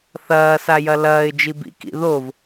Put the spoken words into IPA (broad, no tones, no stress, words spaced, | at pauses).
θɐː sajɐlɐːɪ̯ d͡ʒibḭ kḭðov